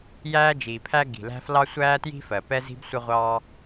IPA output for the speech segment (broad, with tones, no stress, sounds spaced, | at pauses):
j æː˥ d͡ʒ iː˩ pʰ æ˥ ɡ i̤˩ l æ̤˥ f l ɑ˥ sʷ æː˥ t j i̤˥ f ɜ˩ p ɛ˥ z i̤˥ b sʷ ə˥ ʁʷ ɑː˥